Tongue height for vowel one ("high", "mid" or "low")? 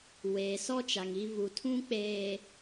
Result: mid